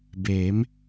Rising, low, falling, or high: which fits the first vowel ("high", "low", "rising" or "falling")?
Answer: rising